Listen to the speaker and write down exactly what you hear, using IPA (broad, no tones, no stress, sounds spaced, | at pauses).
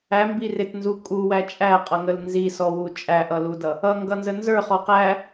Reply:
æ m b i r ɪ t n z u kʼ u w æ t͡ʃʼ æ qʼ ʌ ŋ ə l n z i s ɔ w u t͡ʃʼ æ ʔ ʌ l u d ʌ | ʌ ŋ ɡ ʌ n z ə n z ə˞ χ ɔ q æ